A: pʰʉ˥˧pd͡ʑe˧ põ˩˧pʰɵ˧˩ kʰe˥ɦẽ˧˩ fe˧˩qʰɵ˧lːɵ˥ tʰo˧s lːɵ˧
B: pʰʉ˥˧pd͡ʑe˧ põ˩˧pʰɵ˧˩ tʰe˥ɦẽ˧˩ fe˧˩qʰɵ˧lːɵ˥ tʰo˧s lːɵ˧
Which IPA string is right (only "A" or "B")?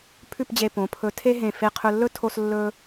B